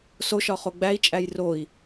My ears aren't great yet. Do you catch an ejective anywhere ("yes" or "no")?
yes